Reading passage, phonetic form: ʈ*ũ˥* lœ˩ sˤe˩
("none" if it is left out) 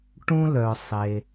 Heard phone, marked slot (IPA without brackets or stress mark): ũ˥